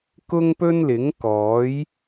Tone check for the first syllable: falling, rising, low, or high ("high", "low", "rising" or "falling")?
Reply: high